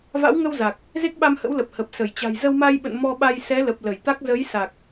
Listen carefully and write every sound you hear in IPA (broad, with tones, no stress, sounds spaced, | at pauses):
v a̰˧˥ w ŋ ə˧ w z a˨˩ k̚ | z e˦˥ k̚ ɓ a˧ m h ə̰˧˥ w l ə˨˩ p̚ h ə˨˩ p̚ s ə˧˩ j t͡ɕ a̤˨˩ j z ə˧ w m a˧ j ɓ ə̰˧˨ n m ɔ˧ ɓ a˧ j s ɛ˨˦ l ə˨˩ p̚ l ə˧˩ j t̪ a˦˥ k̚ z ə˨˦ j s a˨˩ k̚